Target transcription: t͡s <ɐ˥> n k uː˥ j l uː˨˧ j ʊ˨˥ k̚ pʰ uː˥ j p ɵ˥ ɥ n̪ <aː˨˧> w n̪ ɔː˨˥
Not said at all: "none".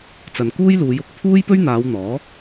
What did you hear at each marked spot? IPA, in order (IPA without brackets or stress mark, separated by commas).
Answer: ɐ˨, aː˨˧